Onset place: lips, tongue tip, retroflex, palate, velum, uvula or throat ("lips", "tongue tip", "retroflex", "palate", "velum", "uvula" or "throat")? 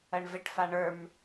retroflex